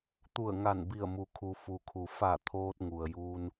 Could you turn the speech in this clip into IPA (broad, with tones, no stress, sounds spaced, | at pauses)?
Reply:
t̪ u˧˩ ə̯ ŋ a˧˩ n b i˧˩ ə̯ m u˩˧ kʰ u˩ f u˩ kʰ u˩ f a˧˩ t̪ʰ oː˧ t̚ ŋ u˩ ə̯ j uː˧ n